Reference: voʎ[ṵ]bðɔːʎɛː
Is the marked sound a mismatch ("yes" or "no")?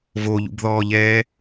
no